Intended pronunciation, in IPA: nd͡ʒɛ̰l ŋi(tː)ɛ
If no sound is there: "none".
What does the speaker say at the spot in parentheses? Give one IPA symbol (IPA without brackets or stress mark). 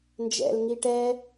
ʈ